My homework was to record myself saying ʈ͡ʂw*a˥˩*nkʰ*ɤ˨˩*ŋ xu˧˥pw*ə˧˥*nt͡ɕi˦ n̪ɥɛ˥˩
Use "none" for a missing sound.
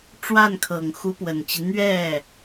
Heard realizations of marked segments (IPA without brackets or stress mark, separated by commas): a˥˩, ɤ˨˩, ə˨˩